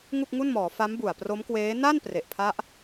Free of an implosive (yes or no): yes